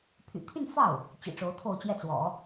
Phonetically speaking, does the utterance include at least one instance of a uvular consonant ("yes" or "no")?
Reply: no